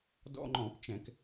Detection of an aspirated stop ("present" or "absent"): absent